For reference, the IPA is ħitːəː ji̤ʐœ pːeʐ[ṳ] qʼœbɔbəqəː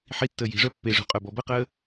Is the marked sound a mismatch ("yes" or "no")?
no